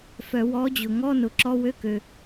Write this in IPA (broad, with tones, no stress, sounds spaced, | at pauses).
f œ˨˩˦ w ɔ˨˥ d͡ʑ ʊ˩ ŋ ɔ˧˥˧ n ʊ˩˧˩ ǁ ɔ˧˥˧ w ø˧˥˧ k ø˩